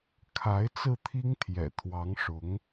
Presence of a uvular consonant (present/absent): absent